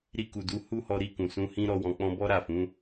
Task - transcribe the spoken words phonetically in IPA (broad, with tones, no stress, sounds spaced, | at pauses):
ɾ i˧ k u˨ d u˨˦ h u˦ h ɔ˧ ɾ i˧ k ũ˨ s ũ˧ h ĩ˦ ɾ ɔ˧ w ɔ̃˧ k͡p ɔ̃˦ b ɔ˦ ɾ a˦˨ f ũ˨˦